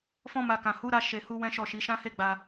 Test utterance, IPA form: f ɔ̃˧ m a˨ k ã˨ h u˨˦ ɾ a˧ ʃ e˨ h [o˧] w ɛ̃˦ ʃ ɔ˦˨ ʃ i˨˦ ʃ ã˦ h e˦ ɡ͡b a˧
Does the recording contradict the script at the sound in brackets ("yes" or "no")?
yes